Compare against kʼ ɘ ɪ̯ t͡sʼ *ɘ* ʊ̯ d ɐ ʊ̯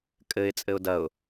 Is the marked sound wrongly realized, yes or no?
no